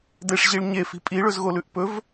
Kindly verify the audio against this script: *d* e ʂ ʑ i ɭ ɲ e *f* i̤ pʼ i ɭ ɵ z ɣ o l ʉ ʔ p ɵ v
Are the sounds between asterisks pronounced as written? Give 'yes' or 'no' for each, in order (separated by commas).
yes, yes